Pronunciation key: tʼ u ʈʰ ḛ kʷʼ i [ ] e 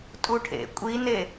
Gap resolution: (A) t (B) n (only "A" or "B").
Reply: B